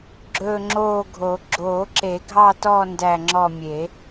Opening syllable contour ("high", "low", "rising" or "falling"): falling